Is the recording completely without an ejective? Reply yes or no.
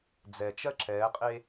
no